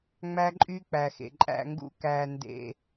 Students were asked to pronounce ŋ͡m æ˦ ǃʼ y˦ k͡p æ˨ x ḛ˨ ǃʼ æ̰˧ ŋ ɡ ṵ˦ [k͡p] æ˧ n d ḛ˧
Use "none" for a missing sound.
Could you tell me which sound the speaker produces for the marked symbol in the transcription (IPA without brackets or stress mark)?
k